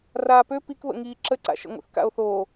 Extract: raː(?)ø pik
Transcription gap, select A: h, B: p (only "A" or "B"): B